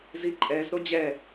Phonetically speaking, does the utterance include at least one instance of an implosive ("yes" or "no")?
no